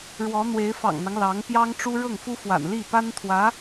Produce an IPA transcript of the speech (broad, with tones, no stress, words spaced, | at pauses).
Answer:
ɻwɔ˧˥n̪we˧˥ɪ̯ fɑ̰˨˩ŋn̪ɑ˦ŋ lɑ˧˥ŋ pjɑ˥ŋʈ͡ʂu˥ ɻɤ˥˩ŋfu˥fwa̰˨˩n li˥˩pa˥nt̪ʰwä˧˥